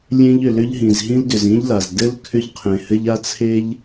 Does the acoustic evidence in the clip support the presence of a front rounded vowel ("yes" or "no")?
yes